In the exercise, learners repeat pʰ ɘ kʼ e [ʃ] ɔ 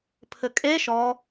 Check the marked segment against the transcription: correct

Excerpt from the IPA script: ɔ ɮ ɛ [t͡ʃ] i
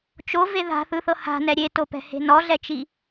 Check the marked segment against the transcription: correct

